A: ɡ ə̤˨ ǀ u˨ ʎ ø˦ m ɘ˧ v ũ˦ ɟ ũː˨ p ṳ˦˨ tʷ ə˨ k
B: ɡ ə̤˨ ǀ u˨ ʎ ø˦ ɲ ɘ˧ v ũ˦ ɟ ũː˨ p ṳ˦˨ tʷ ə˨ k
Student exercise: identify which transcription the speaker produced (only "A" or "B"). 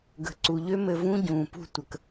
A